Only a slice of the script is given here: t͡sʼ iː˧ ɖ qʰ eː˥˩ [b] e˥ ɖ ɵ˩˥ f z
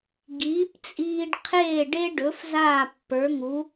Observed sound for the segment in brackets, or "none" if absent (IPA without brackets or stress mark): ɖ